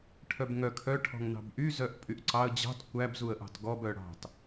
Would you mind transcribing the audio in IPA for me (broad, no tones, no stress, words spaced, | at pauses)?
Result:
ʈʰœbŋœ kʰœ ʈʰɔ̤ŋnɑ̤bʔy zœʔpʼyʔǀɑə̯ d͡ʑɑ̤t kʷæb zuə̯ʔɑ̤tɡɔb œɽɑ̤t